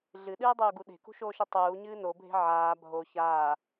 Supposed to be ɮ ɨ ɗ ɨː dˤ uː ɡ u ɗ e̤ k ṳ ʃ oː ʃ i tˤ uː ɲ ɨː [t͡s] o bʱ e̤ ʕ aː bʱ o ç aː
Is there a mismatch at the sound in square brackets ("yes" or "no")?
yes